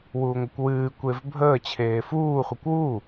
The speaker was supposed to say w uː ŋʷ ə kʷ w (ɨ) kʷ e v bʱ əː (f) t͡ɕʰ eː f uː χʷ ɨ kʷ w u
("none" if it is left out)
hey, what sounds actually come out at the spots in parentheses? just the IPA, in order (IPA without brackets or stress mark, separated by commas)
ɨː, none